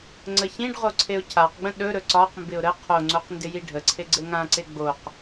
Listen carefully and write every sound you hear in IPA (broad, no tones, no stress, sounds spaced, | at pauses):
ŋ͡ǀ ə ç ĩ ɖ ʁ o ǀʰ e ʊ̯ cʰ a q ɡ͡b ə̃ ɗ ɵ ɾ ɵ ǀ ɒ q m b ɪ ʊ̯ ɾ ə qʰ o ŋ͡ǀ o q n d ɪ j i ɖʱ ə ǀʰ e ɡ͡ǀ ɘ ŋ ã ǀ e ɡ͡b o q